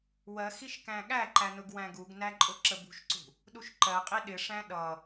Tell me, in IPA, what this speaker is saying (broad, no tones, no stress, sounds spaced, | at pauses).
w ɜ x i ʃ k æ̃ ɠ æ ǃ æ n ʊ ɡ w æ̃ ɡ u ɡ n æ ǃʼ ʊ ǁ ə b ṳ ʃ ǀ ṳ | ɗ u ʃ ǃ ɜ qʼ i ɗ ɪ ʂ æ̃ ɗ ʌ